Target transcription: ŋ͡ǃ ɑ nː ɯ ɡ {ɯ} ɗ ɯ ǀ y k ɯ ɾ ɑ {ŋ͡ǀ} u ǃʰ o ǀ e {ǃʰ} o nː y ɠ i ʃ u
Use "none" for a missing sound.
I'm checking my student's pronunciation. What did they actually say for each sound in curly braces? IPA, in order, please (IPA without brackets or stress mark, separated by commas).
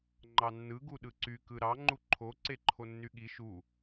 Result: u, ŋ͡ǃ, ǃʰ